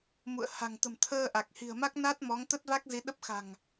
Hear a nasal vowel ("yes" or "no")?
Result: no